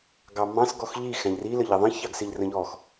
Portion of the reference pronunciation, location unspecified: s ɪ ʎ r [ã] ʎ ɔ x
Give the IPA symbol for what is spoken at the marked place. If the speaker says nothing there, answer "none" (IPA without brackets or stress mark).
ə̃